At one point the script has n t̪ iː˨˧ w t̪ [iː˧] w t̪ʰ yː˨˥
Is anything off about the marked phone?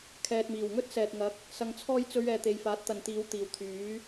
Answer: yes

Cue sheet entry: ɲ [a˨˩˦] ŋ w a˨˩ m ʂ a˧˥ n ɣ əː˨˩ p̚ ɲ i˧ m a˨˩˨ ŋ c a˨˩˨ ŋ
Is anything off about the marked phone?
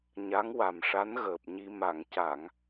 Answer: yes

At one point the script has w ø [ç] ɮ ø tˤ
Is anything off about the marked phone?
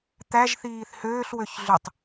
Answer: no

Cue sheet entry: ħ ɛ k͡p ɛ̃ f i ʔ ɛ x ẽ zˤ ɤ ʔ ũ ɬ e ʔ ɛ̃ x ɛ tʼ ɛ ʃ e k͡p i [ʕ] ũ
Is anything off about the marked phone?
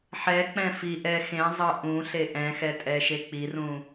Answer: yes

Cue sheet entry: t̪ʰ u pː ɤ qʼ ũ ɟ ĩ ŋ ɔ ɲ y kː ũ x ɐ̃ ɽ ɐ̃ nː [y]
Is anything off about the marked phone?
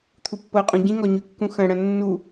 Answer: yes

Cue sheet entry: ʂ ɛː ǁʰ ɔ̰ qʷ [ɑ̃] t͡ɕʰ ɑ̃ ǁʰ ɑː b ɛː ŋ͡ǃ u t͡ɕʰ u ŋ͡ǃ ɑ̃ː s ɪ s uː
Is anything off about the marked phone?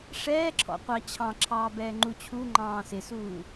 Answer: yes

